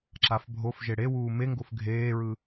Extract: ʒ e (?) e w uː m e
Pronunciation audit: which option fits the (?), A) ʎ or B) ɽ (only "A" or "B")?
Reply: B